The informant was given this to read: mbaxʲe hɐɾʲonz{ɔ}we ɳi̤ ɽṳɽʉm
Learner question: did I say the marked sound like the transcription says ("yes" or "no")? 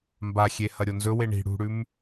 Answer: no